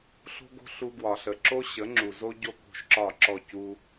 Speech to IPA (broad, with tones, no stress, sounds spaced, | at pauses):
ɬ o̤˦ ɡ o̤˦ ɬ u˧ ɡ w ɒ˨ ɬ ə˨ ǁ o˦ ɕ ə˨˦ ŋ͡ǁ u˨ z o˦ ɟ o˦ k o̤˧ ʃ ǁ ɒ˦˨ ǁ ɔ˦˨ c u˦